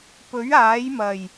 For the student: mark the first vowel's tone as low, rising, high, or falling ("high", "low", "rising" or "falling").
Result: rising